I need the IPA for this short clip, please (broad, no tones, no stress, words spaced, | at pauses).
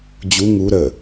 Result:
d͡ʑu ŋu ɾə